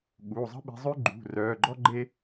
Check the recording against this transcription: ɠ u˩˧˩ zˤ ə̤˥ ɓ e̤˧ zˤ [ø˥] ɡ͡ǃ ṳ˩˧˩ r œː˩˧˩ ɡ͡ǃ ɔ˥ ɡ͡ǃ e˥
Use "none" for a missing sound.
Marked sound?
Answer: ø˥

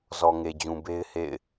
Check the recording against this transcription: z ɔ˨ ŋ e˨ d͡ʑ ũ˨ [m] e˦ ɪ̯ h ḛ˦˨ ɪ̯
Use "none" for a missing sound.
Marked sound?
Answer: b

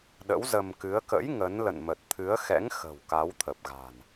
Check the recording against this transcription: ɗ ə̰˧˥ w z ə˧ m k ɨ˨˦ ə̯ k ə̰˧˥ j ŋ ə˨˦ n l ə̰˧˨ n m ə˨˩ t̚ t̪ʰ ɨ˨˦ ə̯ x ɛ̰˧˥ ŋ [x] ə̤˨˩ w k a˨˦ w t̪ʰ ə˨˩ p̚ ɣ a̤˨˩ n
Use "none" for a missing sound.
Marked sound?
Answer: x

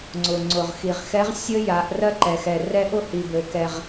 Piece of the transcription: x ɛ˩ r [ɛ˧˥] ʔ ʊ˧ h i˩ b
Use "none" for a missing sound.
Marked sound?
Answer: ɛ˧˥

